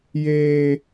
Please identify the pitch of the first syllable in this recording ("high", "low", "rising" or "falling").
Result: high